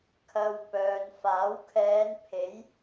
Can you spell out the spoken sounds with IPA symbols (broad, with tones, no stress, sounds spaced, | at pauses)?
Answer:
kʰ ɐ˨ w p œː˨ n f aː˨˥ w kʰ ɛː˨˧ n pʰ e˨˥ j